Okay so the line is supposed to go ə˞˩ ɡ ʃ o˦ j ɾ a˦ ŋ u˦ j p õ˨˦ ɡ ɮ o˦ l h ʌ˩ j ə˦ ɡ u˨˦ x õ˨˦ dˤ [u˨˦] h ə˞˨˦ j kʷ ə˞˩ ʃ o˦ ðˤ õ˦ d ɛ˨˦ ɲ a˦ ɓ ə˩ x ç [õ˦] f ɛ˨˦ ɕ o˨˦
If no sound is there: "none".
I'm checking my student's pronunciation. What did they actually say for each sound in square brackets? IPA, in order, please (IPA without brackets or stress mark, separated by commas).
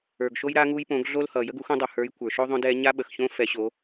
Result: u˩, õ˦